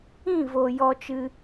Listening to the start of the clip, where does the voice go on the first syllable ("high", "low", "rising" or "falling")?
falling